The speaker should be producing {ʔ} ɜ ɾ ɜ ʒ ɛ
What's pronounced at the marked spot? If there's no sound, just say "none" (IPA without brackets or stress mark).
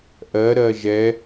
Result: ʔ